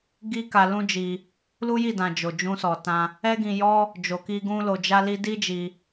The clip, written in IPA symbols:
ɡi˦ka˧ lũ˦d͡ʒi˧ | lu˦ji˦˨dã˨ d͡ʒo˨d͡ʒũ˧sɔ˨tã˧ | ɛ˦ɡĩ˧jɔ˦ | d͡ʒo˨ki˧ ɡũ˦lo˧d͡ʒa˦li˦ di˦d͡ʒi˧

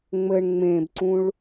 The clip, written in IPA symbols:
ŋ͡mɘɳ ŋ͡mẽbǀũɭ

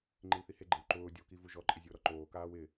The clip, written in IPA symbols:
ŋ͡ǃilθiheɡ͡ǃew ǃʊː dʲɔki vuʒɔǃʼɪ zʲʊːɾɔǃoːkaːw ɪ

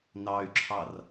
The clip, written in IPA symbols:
nɑy̯ǁʰɑr

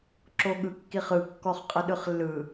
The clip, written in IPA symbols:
ǁoɠɯkːiχɯ kːɔχqʼəɗɯχlːɯ

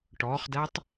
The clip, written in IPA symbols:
ʈɔχdætˤ

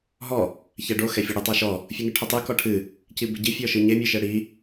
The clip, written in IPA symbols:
ɦɔ | çɛɖo xɛfʲɐɽɨ tˤaʃɔ | fʲɨŋɨʈʰɐtˤɨ kɔʈʰɨ | cibeɟi fʲɔʃɨɲe mʲɨʃɘɽi

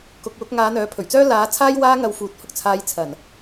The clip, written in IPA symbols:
kʊ˨k̚wʊ˨˥k̚ ŋaː˨˧n̪œː˨˥pʰɵ˨˩ɥt͡sœː˥ laː˨˥ t͡sʰaː˥j waː˧ŋɐ˨w fuː˨˥t̚ hʊ˥k̚t͡sʰaː˧jt͡sʰɐ˨˩n

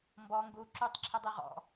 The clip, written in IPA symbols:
mbɔ ŋɡu ǁutˤǁʰədˤɨ ʁɔ̰

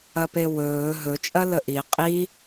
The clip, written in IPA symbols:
ɐpewɵː ɦɵ t͡ʃʼɐləʔi qʼi

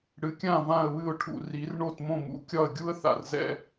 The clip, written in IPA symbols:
ɽɨ˩˥kʲã˥˩ vã˥˩ə̯βɨ˥˩ʊ̯ʈʰṵ˩ ri˩˥r ɳo˥˩t mõ˥˩mṵ˩˥ kʲɒ˥˩ə̯ ɡʲu˥ə̯θa̰˩rzɛ̰˧

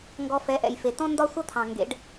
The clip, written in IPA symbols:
ŋɡɔ˧fɛ˨˦ʔɛ̰˨j fe˨ tɔ̃˦ndɒ˦ sʷɐ˦ t̪ʰɑ̃˨ŋɡḛ˨˦ɖ

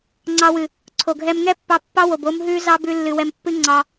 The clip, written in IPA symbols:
ŋ͡ǀɑ˧wɨ˨ | ǀʰo˨ɡʱɛ˧m ŋɛ˦pːɑ˧ pːɑ˦wo˨b o˦mɦʉ˦ zɑ˦bʉ˧lːɨ˨ wɛ˧mpːɨ˦ŋ͡ǀɑ˧

